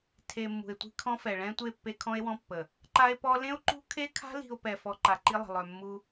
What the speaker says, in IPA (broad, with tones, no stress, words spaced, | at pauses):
tʰe˨ mːṳ˨e̯tʷi̤˦kʰɔ̃˦fɛ˨ ɭɛ̃˦tʷe˦˨ pːe˦kʰɔ̃˦e̯wɔ̃˦pːə˨ | ǃa˦e̯pɔ˦ lẽ˦o̯ǃṳ˦kʰe˦kʰa̤˦ li̤˨o̯ pɛ˨ fɔ˨ ǃa˨ǃi˦lˠə̤˨ lˠœ˨mːu˦